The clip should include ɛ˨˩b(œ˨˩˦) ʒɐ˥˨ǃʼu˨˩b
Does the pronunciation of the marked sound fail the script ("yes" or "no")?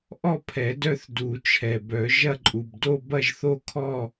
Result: no